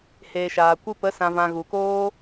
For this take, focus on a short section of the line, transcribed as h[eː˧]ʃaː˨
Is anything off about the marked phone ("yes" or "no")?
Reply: yes